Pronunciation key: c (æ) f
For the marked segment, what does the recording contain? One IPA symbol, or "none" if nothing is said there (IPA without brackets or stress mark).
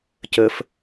ə